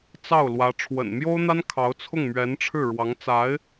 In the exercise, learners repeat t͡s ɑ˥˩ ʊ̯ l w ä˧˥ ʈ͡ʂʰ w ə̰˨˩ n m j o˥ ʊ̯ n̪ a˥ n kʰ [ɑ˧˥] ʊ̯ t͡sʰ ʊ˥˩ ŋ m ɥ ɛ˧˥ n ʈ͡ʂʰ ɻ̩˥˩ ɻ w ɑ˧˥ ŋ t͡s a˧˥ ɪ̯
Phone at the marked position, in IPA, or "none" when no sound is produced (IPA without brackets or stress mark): ɑ˧˥